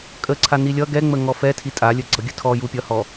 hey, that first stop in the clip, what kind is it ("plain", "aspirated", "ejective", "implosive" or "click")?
ejective